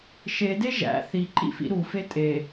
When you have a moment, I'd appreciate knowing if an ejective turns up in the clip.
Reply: yes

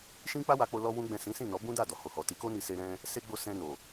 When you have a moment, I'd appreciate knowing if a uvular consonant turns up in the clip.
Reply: no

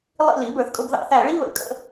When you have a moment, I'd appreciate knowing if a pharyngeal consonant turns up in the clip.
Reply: no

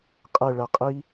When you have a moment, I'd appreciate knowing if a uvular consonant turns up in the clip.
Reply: yes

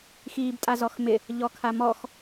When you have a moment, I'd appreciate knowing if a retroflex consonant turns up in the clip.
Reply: no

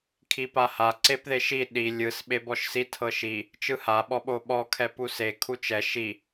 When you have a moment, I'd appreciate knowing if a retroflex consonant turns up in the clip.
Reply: no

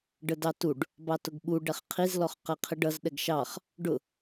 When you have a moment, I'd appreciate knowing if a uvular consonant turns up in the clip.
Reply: yes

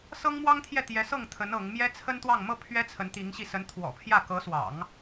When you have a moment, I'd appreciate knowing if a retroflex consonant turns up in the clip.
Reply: no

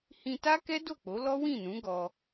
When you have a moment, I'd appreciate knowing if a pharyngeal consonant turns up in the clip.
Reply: no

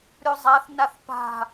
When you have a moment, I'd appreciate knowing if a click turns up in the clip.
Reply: no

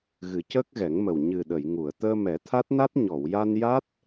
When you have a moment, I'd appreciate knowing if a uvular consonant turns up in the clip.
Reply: no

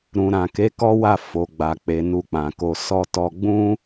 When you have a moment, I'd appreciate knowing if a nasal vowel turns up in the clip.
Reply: yes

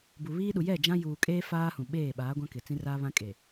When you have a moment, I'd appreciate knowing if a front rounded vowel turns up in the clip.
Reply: no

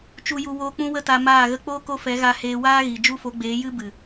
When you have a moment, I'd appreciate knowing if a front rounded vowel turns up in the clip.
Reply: no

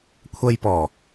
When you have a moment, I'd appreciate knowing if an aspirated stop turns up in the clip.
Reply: yes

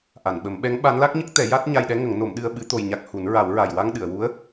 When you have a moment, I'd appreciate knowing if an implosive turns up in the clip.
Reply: yes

